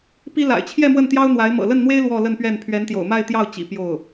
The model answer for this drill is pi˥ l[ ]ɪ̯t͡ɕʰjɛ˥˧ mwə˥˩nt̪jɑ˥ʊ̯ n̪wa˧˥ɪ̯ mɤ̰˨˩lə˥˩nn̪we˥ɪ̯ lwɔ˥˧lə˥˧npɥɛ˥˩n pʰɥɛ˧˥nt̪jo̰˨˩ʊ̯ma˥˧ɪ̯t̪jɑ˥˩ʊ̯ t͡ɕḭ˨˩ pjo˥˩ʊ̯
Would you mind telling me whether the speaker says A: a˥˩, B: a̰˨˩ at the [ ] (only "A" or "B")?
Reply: B